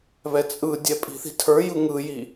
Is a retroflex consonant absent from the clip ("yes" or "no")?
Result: yes